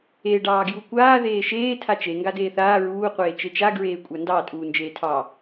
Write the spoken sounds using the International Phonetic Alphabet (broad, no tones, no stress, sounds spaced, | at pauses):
e ɖ ɑː ɡ j u kʷ aː ð eː ʃ eː tʰ a t͡ʃ e ŋ ɡ a d eː θ aː ɹ uː qʷ eː t͡ʃ e t͡ʃ a ɡ ɹ eː kʷʼ a n d ɑ tʼ uː n d͡ʒ eː tʰ ɑ